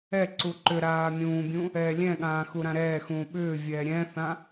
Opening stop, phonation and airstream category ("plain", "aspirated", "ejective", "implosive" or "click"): click